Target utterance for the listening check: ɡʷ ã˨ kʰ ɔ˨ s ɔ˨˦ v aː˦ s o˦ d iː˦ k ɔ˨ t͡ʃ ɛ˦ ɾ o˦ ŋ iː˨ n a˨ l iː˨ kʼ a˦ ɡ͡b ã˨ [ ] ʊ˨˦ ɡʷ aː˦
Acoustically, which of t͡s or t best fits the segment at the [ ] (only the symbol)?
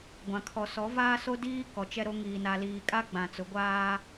t͡s